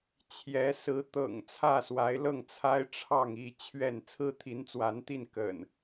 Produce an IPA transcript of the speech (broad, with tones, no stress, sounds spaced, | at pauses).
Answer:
t͡ɕʰ j ɛ˨˦ s ɹ̩˨˦ t̪ ɤ̰˨˩ ŋ t͡sʰ ä˥˨ s w a˨˦ ɪ̯ l ɤ˥˨ ŋ t͡sʰ a˦ ɪ̯ ʈ͡ʂʰ ɑ˥˨ ŋ i˥˨ t͡ɕʰ ɥ ɛ˥˨ n t͡sʰ ɹ̩˦ t̪ʰ i˨˦ n t͡s w a˨˦ n t̪ i˥˨ n k ə̰˨˩ n